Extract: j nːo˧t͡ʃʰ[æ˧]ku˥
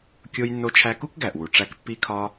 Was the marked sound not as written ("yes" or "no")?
no